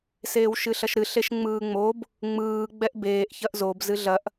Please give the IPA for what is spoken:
seːwʃɨɬɐʃɾɨ ɬeʃŋ͡mɯːŋ͡mob | ŋ͡mɯː ɡ͡bɛʔbeːʔ çɐʔzob zɨɮɐʔ

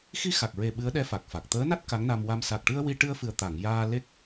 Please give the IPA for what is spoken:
xi˧xa˨˩k̚ɹe˨˩ ɓɨ˧˥ə̯ɗɛ˧˥ fa˨˩k̚fa˨˩k̚ t̪əː˧˥na˦˥t̚ ka˧˥ŋna˧mwa˧m sa˨˩k̚ʈɨ˧ə̯ wi˧ ʈɨ˧ə̯fɨ˨˩ə̯t̪a˨˩˨ŋ jaː˧ le˦˥k̚

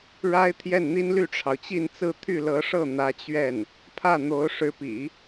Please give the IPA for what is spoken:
ɻa˥ɪ̯ t̪ʰjɛ˥˩nn̪i˥n ly˥˩ʈ͡ʂʰɑ˩ʊ̯t͡ɕi˥˧nt͡sɹ̩˥˧ t̪ʰy˥˩lɤ˧˥ʂɤ˥˩ n̪ä˧˥t͡ɕɥɛ˥˩n | pʰä˥˩n̪o˧˥ʊ̯ ʂɻ̩˧˥pḭ˨˩˦

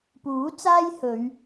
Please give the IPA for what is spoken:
puː˨˥t͡saː˥j hɵ˨˧ɥ

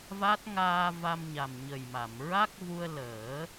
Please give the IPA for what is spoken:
va˦˥t̚ ŋaː˧ va˧mɲa˨˩mɲə˨˩jma˨˩˨m ɹa˦˥k̚vu˧ə̯ləː˨˩˦

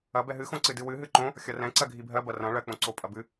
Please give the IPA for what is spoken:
ɐ bɛɦɨxõ ǀɨdɨwɨ ɦɨǃõ | xʲɐrɛ̃ ǀɜɡʱibʱɜ bɐrɐ̃ ɭɜk͡põǀo pʼɐbɨ

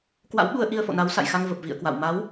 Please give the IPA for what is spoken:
kwa̰˧˥wɓu˧ə̯ ʔi˧ə̯fo̰˧˨na˨˦w sa̰˧˨jxa˧ŋvə˨˩p̚ vḭ˧˨ə̯kwa̰˧˨w ma˨˦w

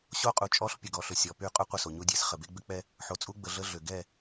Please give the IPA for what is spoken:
ɕo˦qʼu˨t͡ʃʼɔ˦ɬ pʲə˨ɡɔ˨ɬʏ˨ sʲɔ˨py˦˨ qʼu˦ qʷə˦˨so˨ɲu˦dʲe˨˦s χə˨be˦ɡ͡bʏ˦k͡pɛ˦ | ħo˨t͡sʼu˦ɡ͡bə˨ ɮə˦ɮʏ˨ ɡɛ˦˨

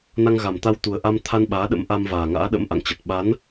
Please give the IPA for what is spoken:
na˧ŋɣa˨˩mt̪a˧wt̪u˨˩ə̯ ʔa˧mt̪ʰa˧n ɓaː˨˦ɗə̰˧˥m ʔa˧mvaː˨˩ŋa̰ː˧˥ɗə̰˧˥m ʔa̰˧˨ŋt͡ɕə˨˩t̚ ɓa˨˦n

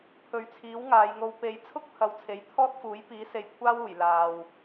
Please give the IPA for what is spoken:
pʰɵ˨ɥt͡sʰiː˨˥w ŋaː˨˧jŋo˧w pe˨˧jt͡sʰʊ˥k̚ pʰɐ˨˧wt͡sʰe˨˥j t̪ʰɔː˥t̚fuː˨˥jpiː˨˥se˨j kʷʰaː˥wuː˨˩j laː˨w

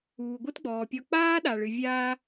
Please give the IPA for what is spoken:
uː˩ɡʷɨ˥tɡ͡bɔː˩pʲɔ˧ k͡paː˥ɗa˩ɭɨ˩vʲaː˧

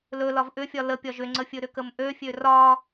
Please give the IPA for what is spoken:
lɵ lɒvʔʏfʲɒ ləpʲɒʒ ʏŋ͡ǀəfʲɵ ɾʏkəmʔøfʲø rɒ

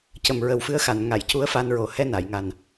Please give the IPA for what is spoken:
cə˨˩˨mɹə˨˩˦wfɨ˧˥ə̯xa˨˩˨n ŋa˨˩˨jcu˧˥ə̯ fa˧nɹo˨˩˦ hɛ˧na˨˩˨jŋa˨˩n

